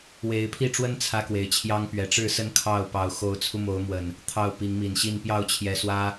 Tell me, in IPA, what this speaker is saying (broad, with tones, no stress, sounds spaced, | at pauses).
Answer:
w e˨˦ ɪ̯ pʰ i˥˨ ʈ͡ʂ w ə˦ n t͡sʰ ä˦ k w e˨˩ ɪ̯ t͡ɕʰ j ɑ˦ ŋ p ɥ ɛ˨˩ ʈ͡ʂ ɻ̩˥˨ s ə˦ n kʰ ɑ˥˨ ʊ̯ p ɑ˨˦ ʊ̯ x o˨˦ ʊ̯ t͡sʰ u˧ m o˨˦ ʊ̯ m w ə˨˩ n | t̪ʰ ɑ˥˨ ʊ̯ p i˨˦ ŋ m i˨˩ n ɕ i˥˨ n p j ɑ˥˨ ʊ̯ t͡ɕʰ j ɛ˨˩ s w ä˦